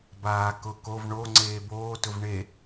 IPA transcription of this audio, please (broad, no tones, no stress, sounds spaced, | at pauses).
b aː k ʊ k o v ɳ o ŋ͡ǀ eː b oː t ʊ v ɳ e